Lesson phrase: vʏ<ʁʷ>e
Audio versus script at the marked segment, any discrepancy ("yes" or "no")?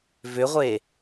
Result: no